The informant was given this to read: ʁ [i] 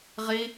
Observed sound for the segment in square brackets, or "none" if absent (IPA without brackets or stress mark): i